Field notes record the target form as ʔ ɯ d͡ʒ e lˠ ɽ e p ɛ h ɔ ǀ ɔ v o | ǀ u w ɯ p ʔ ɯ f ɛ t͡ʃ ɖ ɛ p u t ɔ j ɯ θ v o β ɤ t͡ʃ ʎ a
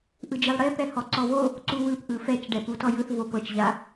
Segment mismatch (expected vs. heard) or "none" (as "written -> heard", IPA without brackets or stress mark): β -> p